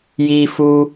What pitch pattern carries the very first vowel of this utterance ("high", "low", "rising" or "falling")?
low